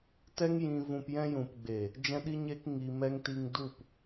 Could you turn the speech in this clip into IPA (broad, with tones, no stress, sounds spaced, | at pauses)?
t ɛ˦ ŋ j ĩ˧ v ũ˧ p j ɛ̃˧ j ũ˨ p ɡ͡b e˨ | d͡ʒ ɛ̃˧ ɗ i˦ ɲ eː˦ k ŋ i˧ m ɛ˦ ŋ t i˧ ŋ d u˦˨ p